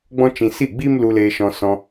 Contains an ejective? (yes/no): no